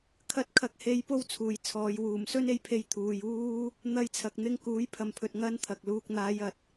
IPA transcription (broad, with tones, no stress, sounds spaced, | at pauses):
kʰ ɐ˨˥ t̚ kʰ ɐ˨˥ k̚ h e˨˧ j p o˥ w t͡sʰ uː˨ j t͡sʰ ɔː˨˧ j w uː˨˩ m s ɵ˥ n e˧ j pʰ e˧ j t̪ʰ uː˨ j uː˥ | n̪ ɐ˧ j t͡sʰ ɐ˨ k̚ n̪ ɪ˧ ŋ k uː˨˥ j pʰ ɐ˨ m pʰ ɵ˨ t̚ ŋ ɐ˥ n t̪ʰ ɐ˨ k̚ l uː˧ k̚ n̪ aː˨˧ j ɐ˨ t̚